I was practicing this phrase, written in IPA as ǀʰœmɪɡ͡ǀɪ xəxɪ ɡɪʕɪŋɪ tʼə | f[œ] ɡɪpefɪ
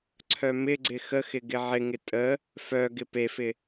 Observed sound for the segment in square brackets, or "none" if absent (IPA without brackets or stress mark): œ